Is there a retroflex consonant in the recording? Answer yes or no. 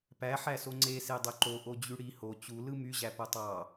yes